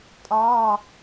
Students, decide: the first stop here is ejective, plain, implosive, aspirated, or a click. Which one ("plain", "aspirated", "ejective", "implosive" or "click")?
ejective